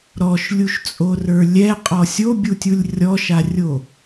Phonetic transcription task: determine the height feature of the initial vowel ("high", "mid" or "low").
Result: mid